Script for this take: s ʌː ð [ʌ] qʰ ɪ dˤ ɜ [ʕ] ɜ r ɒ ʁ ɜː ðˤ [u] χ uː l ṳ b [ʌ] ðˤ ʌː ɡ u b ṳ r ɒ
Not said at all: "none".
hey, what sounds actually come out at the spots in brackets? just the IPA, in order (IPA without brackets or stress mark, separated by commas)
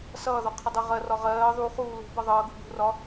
ɒ, ʁ, u, ʌ